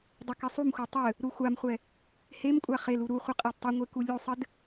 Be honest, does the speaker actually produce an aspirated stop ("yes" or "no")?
no